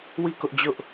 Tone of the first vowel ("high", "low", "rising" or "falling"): falling